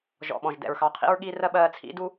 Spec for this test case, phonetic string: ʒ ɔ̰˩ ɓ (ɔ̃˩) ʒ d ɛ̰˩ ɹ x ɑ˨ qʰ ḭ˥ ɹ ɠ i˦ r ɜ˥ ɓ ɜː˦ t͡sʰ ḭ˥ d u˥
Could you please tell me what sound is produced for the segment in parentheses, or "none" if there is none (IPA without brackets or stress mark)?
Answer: ɔ̃˩